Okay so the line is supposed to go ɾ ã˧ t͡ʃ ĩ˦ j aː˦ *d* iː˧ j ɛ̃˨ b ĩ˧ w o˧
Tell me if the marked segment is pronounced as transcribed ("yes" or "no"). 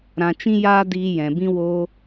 yes